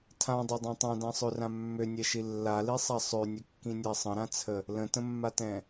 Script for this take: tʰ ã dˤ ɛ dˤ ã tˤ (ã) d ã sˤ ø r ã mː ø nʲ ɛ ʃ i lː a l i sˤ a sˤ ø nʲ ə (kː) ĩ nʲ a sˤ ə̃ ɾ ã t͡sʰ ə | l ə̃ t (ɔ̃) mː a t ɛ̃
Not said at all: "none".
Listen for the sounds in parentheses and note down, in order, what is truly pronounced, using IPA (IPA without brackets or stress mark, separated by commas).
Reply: ã, kː, ə̃